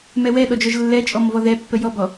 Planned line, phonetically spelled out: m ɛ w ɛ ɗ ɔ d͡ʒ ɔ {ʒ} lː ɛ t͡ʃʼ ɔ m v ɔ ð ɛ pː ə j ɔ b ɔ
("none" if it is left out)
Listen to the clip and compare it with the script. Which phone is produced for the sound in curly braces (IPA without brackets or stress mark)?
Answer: ʒ